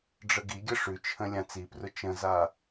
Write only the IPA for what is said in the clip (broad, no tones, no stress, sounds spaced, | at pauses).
ɖ͡ʐ ə ɡ i ɡʲ ə ʂ ʉ t͡ʃʰ ə̃ lʲ ã t͡s i p r ʊ t͡ʃ ə̃ z a